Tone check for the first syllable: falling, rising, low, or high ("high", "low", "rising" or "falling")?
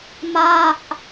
falling